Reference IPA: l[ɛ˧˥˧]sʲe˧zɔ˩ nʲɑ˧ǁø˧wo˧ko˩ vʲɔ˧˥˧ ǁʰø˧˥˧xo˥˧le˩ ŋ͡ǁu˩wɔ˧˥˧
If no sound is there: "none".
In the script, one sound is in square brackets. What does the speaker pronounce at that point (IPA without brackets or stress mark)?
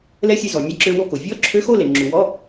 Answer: ɛ˧˥˧